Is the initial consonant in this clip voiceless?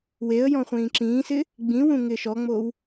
no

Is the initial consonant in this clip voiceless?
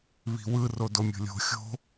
no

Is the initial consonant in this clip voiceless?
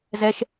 no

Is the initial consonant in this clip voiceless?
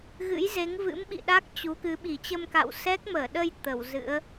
no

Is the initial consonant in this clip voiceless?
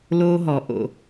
no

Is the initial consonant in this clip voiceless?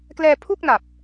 yes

